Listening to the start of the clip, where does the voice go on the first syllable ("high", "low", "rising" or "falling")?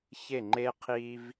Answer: falling